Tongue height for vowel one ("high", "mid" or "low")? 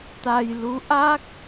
low